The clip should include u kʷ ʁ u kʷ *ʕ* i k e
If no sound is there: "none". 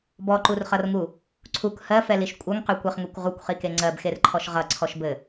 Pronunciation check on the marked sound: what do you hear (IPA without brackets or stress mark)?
χ